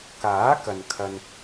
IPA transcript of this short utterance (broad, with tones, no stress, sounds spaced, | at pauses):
k aː˨˥ k ɐ˨ n kʰ ɐ˧ n